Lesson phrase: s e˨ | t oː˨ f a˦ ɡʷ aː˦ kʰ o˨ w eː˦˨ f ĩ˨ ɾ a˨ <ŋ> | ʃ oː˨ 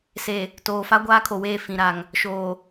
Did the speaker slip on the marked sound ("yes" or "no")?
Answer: no